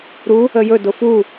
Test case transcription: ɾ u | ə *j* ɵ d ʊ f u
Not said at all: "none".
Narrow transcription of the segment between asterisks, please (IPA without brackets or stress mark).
j